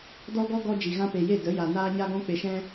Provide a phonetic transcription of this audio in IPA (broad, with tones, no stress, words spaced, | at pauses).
dɔ˧ɡɔ˧ ɡɔ˧ d͡ʒi˨ɣã˧pe˨ je˦˨də˨˦ja˨ naː˦ɲa˦ɡɔ̃˦ k͡pe˨ʃɛ̃˧